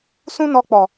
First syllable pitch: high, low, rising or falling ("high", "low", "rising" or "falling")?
high